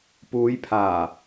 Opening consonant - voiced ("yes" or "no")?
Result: no